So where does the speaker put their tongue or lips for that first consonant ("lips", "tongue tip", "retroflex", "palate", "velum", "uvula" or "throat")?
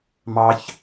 lips